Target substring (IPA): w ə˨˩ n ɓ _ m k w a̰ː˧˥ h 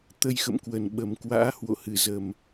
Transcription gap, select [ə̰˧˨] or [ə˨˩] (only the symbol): ə˨˩